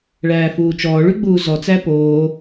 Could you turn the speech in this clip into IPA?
ɭ æː f uː t͡ʃ ɔː ɭ y ɡ͡b uː z ɔ t͡s æ p oː

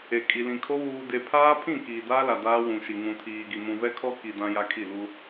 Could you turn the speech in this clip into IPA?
e˨ kʼ i˨ l ĩ˨ kʰ o˦ β uː˨ d e˨ pʰ aː˦ pʰ ĩ˦˨ k iː˨ d aː˦ l a˨ d aː˦ w ũ˨ ʃ i˨ ŋ ũ˨ tʰ iː˨ ɡ i˨ m ũ˨ v ɛ˦ kʰ ɔ˦ k i˨ d ã˦ j a˦ kʰ i˦˨ l u˦

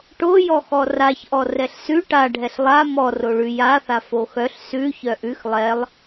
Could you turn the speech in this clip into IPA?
ʈ o j ɔ x ɔ r a ç ʔ ɔ r ɛ ɬ s ʉ ʈ a ɖʱ ɛ ɬ lˠ a m ɔ r o ɭ ʉ j a θ a f o x œ ɬ s ʉ ç œ ʔ ʉ x lˠ ɛ lˠ

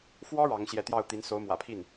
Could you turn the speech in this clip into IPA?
f w ɔ˥ ɻ ɑ˧˥ ŋ ɕ j ɛ˥˧ t̪ j ɑ˥˩ ʊ̯ t̪ i˧˥ n s o˧˥ ʊ̯ m w ä̰˨˩ pʰ i˥˩ n

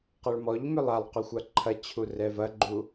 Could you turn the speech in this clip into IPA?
q ɐ ɭ m ɔ ʎ m ʏ lˠ a lˠ q ø xʷ a ǃʰ ɐ t͡ɕʰ u r ɛ v ɐ ɡ͡ǃ u

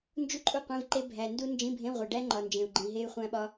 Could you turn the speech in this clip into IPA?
n d͡ʒ u˥ ǃʼ u˥ qʷ ĩ˧˥˧ v ǃ e˥ bʱ æ˨ n d u˥ n d͡ʒ ĩ˧˥˧ bʱ ẽ˧˥˧ ʁʷ e˨ ɖ æ˥ ŋ͡ǃ ɒ˨ n d͡ʒ ẽ˨ u̯ ɡ͡ǃ ĩ˨ ɦ e˥ y̯ χʷ æ̃˥ ɓ ɒ˥

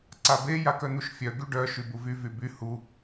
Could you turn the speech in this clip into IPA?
ǀ a b e j a k œ n̪ u ʃ fʲ œ ɡ y ɖ œ ʃ y b u v y v y b y h u

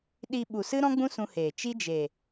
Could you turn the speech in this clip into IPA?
ɗ i˧ ɓ u˨ s ɨ˦ ɾ ɔ̃˦ ɡ͡b ũ˦ s ũ˧ h eː˨ t͡ʃ i˦ d͡ʒ e˨

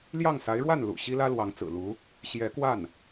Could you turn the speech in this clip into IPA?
l j ɑ˥˩ ŋ s a˧˥ ɪ̯ ɻ w a˥˩ n l ṵ˨˩ ɕ i˥ l ä˥ l w ɑ˧˥ ŋ t͡s ɹ̩˨˩ l u˧˥ | ɕ j ɛ˧˥ k w a˥˩ n

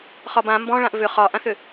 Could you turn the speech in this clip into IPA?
χ ɒ b ã m b ɔ̃ ɭ ã ʔ v ʏ χ ɒ ʔ ã θ ʏ

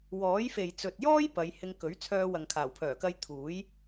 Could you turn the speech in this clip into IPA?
w ɔː˨˥ j f e˨ j t͡s ɵ˨ t̚ j ɔː˥ j p ɐ˨˧ j h ɪ˧ ŋ k ɵ˨˥ ɥ t͡sʰ œː˧ w ɐ˨ ŋ kʰ aː˨˩ w pʰ œː˨˩ k ɐ˧ j t̪ʰ uː˨˥ j

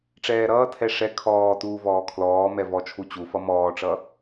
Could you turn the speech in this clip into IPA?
ʈ͡ʂ ɛː ɾ ʌː tʰ ɛ ʂ ɛ kʰ ɔː t uː v ɔː kʰ l ɔː m ɛ v ɔ t͡ʃʰ u t͡ɕ u f ʌ m ɔː ʈ͡ʂ ʌ

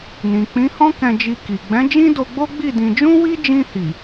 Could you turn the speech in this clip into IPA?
n ĩ˨ k͡p ĩ˨˦ h ɔ̃˦ k ɛ̃˧ d͡ʒ i˧ k i˨ ɡ͡b ɛ̃˨˦ d͡ʒ ĩ˦ d o˧ ɡ͡b o˦ ɡ͡b i˦˨ d ĩ˧ d͡ʒ ũ˦ w i˦ d͡ʒ ĩ˧ h i˨

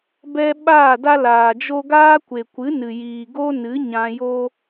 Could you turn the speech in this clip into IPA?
b ɛ˧ ɓ aː˦˨ d a˦ l aː˨ d͡ʒ o˦ ɡ aː˦ kʷ e˨ kʷ ɨ˨˦ n ɨ˨ j iː˨ ɡ o˦ n ɨ˨˦ ɲ ã˧ j o˦

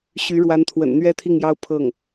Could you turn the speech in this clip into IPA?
ɕ y˧˥ ɻ w a˧˥ n t̪ʰ w ə̰˨˩ n n̪ ɥ ɛ˥ t̪ʰ i˥˩ ŋ j ɑ˥ ʊ̯ pʰ ɤ˥˩ ŋ

